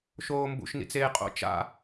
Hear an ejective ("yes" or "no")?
yes